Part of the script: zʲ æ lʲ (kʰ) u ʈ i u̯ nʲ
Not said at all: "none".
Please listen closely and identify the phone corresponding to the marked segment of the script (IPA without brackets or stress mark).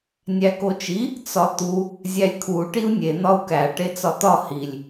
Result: kʰ